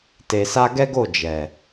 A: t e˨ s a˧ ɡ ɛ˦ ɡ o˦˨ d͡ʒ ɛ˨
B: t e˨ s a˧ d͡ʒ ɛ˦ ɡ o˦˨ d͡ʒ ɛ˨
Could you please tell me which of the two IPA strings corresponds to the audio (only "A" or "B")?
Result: A